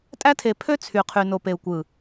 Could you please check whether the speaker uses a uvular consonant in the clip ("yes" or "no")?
yes